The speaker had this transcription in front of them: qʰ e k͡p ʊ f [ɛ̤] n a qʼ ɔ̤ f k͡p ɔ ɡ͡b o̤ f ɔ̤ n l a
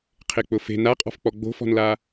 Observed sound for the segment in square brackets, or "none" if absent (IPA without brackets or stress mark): e̤